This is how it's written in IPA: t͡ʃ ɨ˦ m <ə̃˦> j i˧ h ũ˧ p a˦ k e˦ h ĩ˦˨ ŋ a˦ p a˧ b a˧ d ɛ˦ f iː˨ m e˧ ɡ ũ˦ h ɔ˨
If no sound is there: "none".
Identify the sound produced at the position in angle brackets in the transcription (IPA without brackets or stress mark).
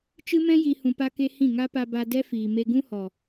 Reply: ɛ̃˦